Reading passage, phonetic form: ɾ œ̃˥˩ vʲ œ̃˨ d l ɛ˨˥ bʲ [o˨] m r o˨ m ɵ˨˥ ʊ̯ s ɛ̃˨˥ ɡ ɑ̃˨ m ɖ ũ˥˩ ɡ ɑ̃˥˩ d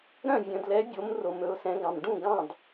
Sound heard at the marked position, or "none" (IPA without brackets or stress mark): o˨˥